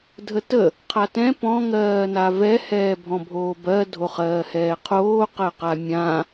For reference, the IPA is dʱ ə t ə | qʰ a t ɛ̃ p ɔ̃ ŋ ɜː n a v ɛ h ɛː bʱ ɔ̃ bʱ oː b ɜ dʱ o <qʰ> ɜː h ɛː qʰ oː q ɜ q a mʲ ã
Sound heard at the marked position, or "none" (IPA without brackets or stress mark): χ